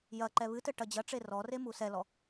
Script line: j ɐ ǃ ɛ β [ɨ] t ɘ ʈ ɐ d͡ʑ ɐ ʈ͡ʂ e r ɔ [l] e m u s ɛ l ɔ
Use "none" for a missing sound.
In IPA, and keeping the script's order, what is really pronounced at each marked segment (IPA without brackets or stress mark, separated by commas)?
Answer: ɨ, r